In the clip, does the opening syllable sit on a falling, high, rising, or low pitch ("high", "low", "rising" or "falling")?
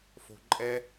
low